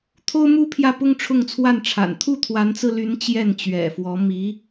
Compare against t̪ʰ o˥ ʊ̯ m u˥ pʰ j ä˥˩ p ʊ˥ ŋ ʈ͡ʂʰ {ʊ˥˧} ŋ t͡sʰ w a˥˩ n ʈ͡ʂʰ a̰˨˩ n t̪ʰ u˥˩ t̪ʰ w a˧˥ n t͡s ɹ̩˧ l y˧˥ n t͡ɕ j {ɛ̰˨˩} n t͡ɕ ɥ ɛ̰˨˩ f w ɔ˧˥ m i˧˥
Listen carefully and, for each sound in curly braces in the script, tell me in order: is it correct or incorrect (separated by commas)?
correct, incorrect